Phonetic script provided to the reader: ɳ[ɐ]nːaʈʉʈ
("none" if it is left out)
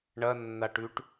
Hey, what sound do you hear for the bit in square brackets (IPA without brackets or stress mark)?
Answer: ɐ